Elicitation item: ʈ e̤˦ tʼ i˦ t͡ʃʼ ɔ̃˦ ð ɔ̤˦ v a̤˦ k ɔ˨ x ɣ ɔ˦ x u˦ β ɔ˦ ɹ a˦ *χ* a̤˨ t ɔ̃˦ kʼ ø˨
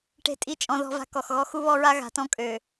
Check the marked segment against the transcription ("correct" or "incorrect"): incorrect